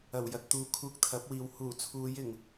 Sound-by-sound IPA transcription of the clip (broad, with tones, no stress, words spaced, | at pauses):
ɐ˨˩wjɐ˨t̚t̪uː˨ kʰuː˧k̚t̪ʰɐ˨˥p̚wiː˨w huː˨˩t͡sʰuː˨˧jɪ˨˩ŋ